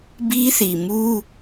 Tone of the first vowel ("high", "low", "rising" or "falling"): high